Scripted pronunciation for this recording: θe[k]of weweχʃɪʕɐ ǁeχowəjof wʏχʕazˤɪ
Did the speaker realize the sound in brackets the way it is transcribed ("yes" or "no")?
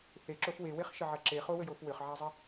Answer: no